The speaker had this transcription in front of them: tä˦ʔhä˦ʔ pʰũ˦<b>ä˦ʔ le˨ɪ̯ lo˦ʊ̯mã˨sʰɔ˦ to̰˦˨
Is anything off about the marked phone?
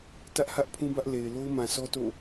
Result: no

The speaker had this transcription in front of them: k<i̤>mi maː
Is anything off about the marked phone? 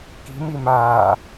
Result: no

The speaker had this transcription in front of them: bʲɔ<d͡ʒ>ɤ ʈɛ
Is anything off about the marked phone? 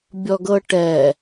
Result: yes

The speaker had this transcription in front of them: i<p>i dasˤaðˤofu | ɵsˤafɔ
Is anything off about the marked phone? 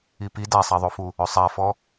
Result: no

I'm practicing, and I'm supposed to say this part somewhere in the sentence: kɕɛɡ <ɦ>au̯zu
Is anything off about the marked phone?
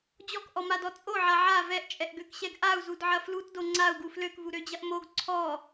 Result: yes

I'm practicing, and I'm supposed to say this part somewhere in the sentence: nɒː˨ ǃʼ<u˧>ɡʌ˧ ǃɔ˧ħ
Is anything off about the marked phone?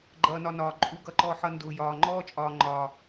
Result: no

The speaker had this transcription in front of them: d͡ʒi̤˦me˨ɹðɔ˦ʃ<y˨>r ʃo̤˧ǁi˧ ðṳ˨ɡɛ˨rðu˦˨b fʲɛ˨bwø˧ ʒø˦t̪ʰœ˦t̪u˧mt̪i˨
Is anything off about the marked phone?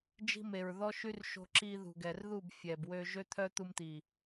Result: yes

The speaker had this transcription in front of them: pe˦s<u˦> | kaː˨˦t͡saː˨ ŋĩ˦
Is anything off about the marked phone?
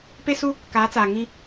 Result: no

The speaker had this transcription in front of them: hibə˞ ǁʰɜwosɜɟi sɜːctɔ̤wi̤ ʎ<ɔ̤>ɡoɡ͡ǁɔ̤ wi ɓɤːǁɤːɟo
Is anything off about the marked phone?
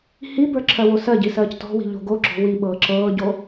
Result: yes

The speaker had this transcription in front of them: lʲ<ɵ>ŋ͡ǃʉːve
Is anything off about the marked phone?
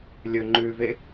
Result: no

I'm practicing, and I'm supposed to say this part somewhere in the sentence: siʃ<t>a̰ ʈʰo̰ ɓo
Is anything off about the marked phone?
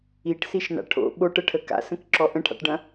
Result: yes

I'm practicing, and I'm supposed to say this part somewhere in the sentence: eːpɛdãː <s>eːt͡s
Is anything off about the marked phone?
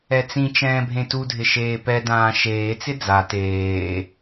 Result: yes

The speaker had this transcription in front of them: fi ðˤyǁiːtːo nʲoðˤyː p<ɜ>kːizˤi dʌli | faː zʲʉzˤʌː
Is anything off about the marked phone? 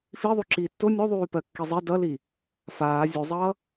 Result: no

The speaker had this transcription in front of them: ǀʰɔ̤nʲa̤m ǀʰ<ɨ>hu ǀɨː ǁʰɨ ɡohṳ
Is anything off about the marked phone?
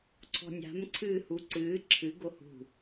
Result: yes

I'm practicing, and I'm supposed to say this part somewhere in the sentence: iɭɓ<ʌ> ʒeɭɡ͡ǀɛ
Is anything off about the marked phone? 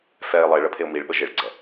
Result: yes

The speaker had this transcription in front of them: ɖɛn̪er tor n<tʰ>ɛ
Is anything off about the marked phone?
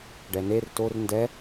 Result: yes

